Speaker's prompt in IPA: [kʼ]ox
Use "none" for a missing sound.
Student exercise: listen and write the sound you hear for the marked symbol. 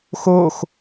x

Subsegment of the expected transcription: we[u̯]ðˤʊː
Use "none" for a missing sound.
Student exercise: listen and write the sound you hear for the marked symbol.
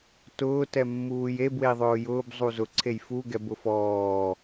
i̯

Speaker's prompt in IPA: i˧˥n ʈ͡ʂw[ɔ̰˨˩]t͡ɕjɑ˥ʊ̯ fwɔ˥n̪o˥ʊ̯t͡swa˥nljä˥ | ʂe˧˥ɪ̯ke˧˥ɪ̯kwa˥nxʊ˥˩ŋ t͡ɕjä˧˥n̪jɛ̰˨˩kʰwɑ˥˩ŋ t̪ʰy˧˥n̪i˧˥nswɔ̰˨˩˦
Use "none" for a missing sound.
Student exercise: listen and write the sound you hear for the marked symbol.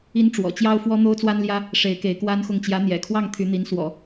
ɔ̰˨˩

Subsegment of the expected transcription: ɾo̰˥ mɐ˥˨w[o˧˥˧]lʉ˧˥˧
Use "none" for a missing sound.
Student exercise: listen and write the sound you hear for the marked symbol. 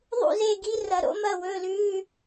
ɵ˧˥˧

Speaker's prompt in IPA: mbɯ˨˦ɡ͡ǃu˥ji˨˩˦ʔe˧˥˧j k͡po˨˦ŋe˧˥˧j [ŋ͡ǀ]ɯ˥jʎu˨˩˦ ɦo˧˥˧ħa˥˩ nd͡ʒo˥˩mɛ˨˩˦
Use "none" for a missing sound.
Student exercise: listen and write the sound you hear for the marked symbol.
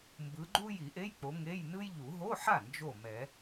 n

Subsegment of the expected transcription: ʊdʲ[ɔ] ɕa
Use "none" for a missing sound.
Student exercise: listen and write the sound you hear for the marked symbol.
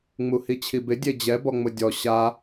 ɔ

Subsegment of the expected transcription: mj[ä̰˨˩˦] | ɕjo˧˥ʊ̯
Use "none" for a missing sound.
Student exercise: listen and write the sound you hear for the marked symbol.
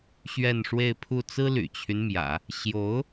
ä̰˨˩˦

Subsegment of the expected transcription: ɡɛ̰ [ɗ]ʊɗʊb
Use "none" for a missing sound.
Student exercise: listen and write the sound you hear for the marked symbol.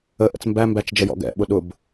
ɓ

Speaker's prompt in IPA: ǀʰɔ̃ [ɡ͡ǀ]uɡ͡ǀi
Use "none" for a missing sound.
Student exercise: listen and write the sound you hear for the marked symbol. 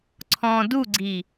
d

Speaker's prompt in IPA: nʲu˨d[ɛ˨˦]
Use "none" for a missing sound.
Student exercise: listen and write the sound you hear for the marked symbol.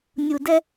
ɛ˦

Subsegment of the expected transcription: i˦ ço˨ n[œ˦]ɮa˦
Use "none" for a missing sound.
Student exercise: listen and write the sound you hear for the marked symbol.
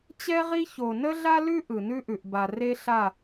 ə˦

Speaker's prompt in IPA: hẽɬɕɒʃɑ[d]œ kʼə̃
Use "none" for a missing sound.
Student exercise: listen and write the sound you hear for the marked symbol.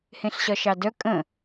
d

